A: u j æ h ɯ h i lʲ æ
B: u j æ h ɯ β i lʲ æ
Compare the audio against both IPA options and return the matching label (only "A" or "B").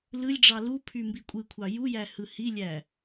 A